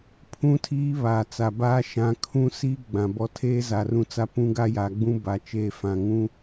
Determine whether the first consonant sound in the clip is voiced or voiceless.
voiceless